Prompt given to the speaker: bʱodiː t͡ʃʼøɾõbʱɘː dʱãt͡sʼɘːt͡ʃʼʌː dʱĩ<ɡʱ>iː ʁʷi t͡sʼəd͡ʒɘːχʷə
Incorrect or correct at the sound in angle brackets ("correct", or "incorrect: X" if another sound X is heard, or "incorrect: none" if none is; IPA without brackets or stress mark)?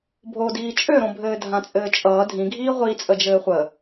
correct